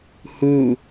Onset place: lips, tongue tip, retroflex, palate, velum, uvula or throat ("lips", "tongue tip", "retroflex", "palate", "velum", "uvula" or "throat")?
throat